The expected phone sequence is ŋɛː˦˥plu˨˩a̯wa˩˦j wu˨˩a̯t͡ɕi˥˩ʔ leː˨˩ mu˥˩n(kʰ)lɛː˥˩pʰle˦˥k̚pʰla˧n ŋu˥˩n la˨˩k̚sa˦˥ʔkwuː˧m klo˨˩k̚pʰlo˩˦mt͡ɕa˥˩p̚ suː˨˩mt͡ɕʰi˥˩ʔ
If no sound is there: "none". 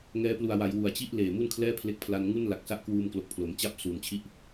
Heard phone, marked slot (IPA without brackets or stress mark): kʰ